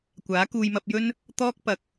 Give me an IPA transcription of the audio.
kʷ aː˨˥ k uː˧ j m ɐ˧ p̚ j ɵ˥ n | t̪ ɔː˥ k̚ p ɐ˨ k̚

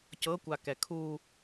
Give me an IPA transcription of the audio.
c ɤ kʷ a k ɛ kʰ u

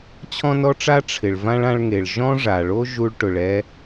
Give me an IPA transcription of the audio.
t͡ɕʰ ɔ̃˥ n ɔ˥ ʈ͡ʂ a˥ ʈ͡ʂʰ ɪ˩ ɭ v ã˥ ɭ ã˥ ɭ ŋ e˩ ɭ ʒ ɔ̃˥ ʐ a˩ ɭ o˥ ʒ u˥ ɭ ʈ ʊ˩ ɭ ɛ˥

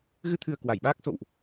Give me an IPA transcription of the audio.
ɣ ɨ˧ t̪ʰ ɨ˨˩ ə̯ k w a˧˩ j ɓ aː˦˥ k̚ s o̰˧˨ w ʔ

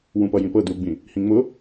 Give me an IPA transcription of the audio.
w ũ p ʌ j ĩ p ɤ d u ɡ͡b ĩ | h ĩ ŋ͡m ʊ

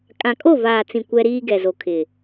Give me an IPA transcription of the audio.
kʼ ã˨ kʼ o˦˨ v aː˨ t͡s ĩ˨ kʷ ɛ˦ ɾ iː˦ ɡ ɛ˨ z o˨ kʰ ɪ˨

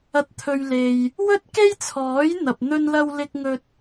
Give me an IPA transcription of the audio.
ɐ˨ t̚ t̪ʰ ɵ˨ ɥ l e˨ j | w ɵ˥ t̚ k e˥ j t͡sʰ ɔː˨˥ j n̪ ɐ˨ p̚ n̪ ɵ˧ n l ɐ˧ w l ɪ˧ k̚ ŋ ɵ˧ t̚

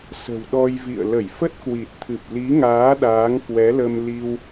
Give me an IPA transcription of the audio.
s ə̤˨˩ w ɗ ɔ˧ j v ḭ˧˨ ə̯ l ə˧˩ j f ə˦˥ t̚ k w i˨˩ t̚ t̪ʰ ɨ˨˩ p̚ l i˨˦ ŋ aː˨˦ ɗ aː˨˦ ŋ k w ɛ˨˦ l ə˧ m l i˧ w

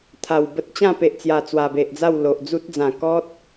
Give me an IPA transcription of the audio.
t̪ʰ a˨˩ w b ə˦ t̚ t͡ɕ ã˥˧ p e˨ ʔ t͡s j a˨˩ t͡s w a˨˩ b e˨ ʔ d͡z a˥˧ w l o˨ ʔ d͡z u˦ t̚ d͡z ã˨˩ k ɔ˦ t̚

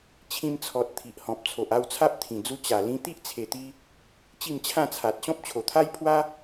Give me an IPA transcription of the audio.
t͡ɕʰ ĩ˧ m t͡sʰ ɔ˨ t̚ t̪ʰ i˨ ʔ h ɔ̃˨ p̚ t͡sʰ o˨ ʔ a˥˧ w t͡sʰ a˦ p̚ t̪ʰ ĩ˨˩ d͡z u˧ t͡ɕ a˨˩ l ĩ˧ t̪ i˦ ʔ t͡sʰ e˨˩ t̪ i˧ | t͡ɕ i˥˧ m t͡ɕʰ ã˥˧ t͡sʰ a˨ t̚ ɕ ɔ̃˦ p̚ t͡ɕʰ o˨˩ t̪ʰ a˦ j pʰ w a˦

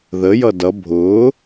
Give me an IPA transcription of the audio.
ð ə j ʌ d ʌ bʱ ʊː

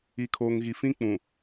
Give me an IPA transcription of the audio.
i˨ kʰ oː˨ ŋ ɣ i˨ f ĩ˦ k͡p ũ˨

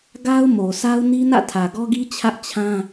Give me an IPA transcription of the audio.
ɡ a˦ ʊ̯ m o˨ s a˦ ʊ̯ n i˦ n ä̰˦˨ tʰ ä˨ ɡ ɔ˦ ɡ i˦ t͡ɕʰ ä˦ ʔ t͡ɕʰ ã˦

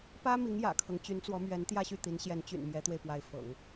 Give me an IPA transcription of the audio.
p ä˥ m i˧˥ ŋ j ä̰˨˩ kʰ ɤ˦ ŋ t͡ɕ y˧˥ n t͡s w ɔ˧˥ m ɥ ɛ˧˥ n t̪ j ä˥˧ ɕ y˥˩ t̪ i˧˥ n ɕ j ɛ˧˥ n t͡ɕ y̰˨˩ n m j ɛ˧˥ t̪ w e˧ ɪ̯ p w a˧˥ ɪ̯ f ɤ̰˨˩˦ ŋ

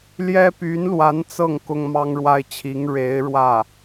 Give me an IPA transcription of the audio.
l j ɛ˥ p y˧˥ n l w a˧˥ n t͡s ɤ˥˩ ŋ k ʊ˥ ŋ m ɑ˥ ŋ ɻ w a˥ ɪ̯ t͡ɕʰ i˧˥ ŋ ɻ e˧˥ ɪ̯ ɻ w ä˥˩

